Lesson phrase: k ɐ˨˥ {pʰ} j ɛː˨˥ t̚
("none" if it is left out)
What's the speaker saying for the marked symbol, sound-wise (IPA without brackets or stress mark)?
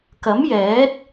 m